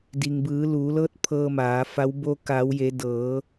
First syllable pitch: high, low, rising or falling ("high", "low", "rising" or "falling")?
low